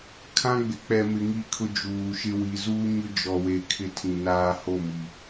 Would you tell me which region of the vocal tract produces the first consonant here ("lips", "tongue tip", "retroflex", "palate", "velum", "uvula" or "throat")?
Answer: velum